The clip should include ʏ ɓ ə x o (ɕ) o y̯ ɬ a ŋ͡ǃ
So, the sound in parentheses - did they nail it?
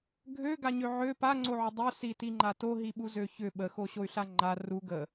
yes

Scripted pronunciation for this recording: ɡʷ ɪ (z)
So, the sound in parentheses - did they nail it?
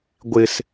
no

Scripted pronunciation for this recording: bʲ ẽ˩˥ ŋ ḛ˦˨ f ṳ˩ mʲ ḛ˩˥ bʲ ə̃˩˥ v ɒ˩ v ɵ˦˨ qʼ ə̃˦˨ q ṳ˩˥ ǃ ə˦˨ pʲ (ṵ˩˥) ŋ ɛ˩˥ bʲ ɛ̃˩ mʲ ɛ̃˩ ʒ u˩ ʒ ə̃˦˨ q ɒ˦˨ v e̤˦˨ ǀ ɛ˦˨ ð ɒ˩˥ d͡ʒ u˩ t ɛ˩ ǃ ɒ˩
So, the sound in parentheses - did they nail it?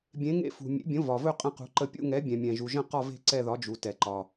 no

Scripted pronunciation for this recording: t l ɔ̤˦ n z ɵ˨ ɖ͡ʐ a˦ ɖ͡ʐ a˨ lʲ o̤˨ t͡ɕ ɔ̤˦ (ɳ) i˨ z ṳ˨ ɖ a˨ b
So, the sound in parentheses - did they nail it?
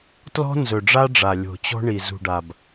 yes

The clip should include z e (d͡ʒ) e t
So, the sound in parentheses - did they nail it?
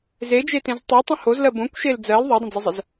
yes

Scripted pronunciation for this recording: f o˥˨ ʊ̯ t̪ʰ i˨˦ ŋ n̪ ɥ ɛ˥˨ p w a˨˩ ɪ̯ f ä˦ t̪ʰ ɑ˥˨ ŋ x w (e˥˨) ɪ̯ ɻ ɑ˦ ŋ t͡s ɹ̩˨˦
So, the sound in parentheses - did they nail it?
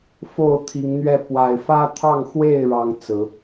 yes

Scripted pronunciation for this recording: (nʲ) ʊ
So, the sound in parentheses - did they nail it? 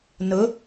no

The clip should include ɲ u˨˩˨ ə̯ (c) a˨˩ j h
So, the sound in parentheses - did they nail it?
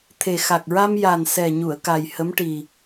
no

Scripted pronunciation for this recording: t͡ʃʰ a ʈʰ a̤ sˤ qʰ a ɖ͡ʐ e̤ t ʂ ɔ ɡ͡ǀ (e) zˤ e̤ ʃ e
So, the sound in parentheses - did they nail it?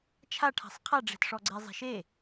yes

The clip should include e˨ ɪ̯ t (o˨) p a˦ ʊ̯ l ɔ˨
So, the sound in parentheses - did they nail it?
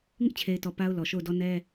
no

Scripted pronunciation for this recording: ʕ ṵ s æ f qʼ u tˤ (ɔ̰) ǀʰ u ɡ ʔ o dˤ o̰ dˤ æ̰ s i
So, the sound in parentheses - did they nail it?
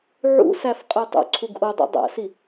no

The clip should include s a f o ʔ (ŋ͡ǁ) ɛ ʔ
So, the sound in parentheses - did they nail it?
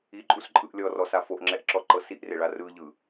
yes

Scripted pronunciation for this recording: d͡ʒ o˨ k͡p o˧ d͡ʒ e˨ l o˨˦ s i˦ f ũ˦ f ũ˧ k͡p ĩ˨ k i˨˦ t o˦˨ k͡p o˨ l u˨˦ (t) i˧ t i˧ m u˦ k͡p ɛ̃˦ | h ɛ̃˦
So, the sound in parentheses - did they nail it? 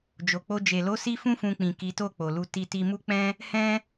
yes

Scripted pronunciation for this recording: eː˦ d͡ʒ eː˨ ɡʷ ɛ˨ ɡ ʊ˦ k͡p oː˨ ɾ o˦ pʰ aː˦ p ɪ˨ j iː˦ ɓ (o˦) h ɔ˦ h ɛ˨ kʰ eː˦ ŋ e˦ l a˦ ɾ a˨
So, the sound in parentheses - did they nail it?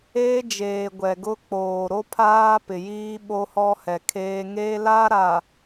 yes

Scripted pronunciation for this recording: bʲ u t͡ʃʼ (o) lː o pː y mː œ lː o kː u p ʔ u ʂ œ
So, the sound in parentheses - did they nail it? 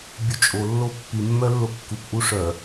yes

